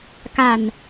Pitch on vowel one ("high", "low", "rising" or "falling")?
low